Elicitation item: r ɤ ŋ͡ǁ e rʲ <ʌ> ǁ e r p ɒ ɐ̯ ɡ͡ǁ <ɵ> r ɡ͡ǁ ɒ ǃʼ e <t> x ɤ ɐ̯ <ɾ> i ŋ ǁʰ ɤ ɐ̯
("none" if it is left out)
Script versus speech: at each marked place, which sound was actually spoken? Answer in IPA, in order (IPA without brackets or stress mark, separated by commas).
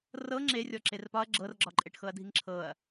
ɔ, ɤ, ʈ, dʱ